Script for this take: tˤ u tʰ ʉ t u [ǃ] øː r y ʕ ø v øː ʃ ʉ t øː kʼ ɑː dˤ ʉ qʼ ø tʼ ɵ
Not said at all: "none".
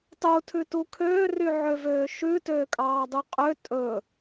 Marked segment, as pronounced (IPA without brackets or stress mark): kʰ